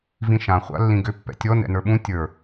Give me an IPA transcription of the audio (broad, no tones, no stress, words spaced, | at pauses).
vĩʃã χʷa̰lːĩɡʏ pːɛ̰tʲɔ nɛ̰nə˞ɓũ tʲə˞